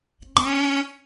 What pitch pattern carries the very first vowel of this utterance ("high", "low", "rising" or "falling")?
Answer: low